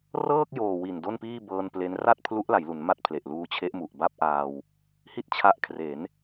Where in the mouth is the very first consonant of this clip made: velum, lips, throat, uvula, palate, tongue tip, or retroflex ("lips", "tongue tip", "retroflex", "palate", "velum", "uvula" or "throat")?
tongue tip